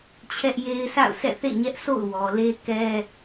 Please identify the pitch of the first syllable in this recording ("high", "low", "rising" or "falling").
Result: high